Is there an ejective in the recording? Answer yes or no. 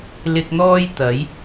no